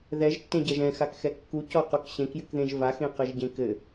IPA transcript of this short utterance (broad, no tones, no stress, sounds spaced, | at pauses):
ð ɛ ʒ tː ẽ ɟ ɛ ʒ ɛ̃ x a k x ɛ kː u c ɔ q o k ɕ ẽ k j ɨ k ð ẽ ʒ v a x ẽ q ɘ ʒ ɟ ẽ k ɘ